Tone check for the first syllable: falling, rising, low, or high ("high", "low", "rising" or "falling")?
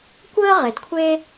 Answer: high